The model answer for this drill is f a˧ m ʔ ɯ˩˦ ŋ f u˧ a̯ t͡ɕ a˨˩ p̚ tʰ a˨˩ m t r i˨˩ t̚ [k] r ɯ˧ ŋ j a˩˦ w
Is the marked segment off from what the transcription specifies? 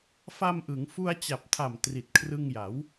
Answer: yes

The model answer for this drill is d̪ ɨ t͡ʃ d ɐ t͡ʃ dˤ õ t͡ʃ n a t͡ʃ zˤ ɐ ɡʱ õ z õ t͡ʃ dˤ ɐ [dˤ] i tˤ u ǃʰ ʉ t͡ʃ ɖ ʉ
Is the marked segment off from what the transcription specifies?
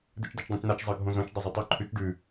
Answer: yes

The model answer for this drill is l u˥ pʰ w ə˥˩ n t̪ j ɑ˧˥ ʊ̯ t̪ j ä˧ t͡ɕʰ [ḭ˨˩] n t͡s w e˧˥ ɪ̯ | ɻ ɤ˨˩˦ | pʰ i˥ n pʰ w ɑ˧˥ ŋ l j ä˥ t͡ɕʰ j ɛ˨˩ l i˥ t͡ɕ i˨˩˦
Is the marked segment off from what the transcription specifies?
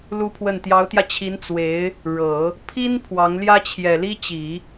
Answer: yes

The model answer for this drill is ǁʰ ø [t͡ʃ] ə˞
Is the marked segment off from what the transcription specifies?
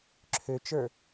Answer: no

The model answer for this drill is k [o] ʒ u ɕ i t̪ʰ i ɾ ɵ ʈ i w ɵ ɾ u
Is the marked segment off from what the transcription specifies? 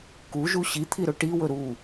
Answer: yes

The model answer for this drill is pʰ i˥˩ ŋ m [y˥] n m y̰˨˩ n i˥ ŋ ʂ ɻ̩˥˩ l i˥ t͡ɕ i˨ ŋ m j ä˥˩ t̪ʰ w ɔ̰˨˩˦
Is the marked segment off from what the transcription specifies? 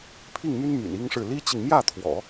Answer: no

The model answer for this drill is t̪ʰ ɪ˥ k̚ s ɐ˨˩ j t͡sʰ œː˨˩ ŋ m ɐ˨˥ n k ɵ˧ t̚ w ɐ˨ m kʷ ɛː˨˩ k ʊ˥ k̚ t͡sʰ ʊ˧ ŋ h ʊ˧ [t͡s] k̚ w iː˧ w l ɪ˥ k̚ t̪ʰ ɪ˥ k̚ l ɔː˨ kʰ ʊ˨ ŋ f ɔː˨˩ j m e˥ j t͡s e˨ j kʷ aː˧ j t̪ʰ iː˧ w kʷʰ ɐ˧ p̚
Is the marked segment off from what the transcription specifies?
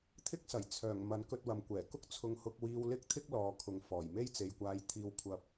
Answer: yes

